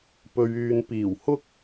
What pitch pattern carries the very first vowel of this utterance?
low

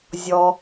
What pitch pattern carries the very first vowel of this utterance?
low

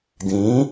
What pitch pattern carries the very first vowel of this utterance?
rising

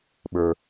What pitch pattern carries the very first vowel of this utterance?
low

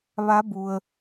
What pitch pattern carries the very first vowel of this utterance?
rising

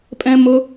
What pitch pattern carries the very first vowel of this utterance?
high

